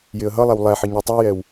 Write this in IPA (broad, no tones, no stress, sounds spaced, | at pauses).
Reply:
j ɪ ə̯ ɦ ʌ lˠ æ w lˠ æ ħ ɪ ɲ ɔ tˤ u j ɛ w